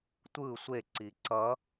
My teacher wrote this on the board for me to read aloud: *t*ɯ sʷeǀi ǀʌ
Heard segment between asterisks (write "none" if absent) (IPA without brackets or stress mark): tʷ